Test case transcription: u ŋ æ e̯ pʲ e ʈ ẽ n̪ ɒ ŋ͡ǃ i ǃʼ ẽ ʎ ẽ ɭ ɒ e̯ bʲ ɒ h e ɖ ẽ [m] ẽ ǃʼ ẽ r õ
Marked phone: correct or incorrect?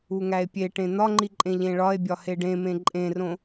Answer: correct